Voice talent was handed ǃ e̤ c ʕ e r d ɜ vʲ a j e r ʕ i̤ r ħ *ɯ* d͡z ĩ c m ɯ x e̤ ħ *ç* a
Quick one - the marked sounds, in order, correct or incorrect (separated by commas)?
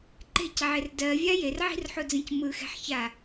incorrect, correct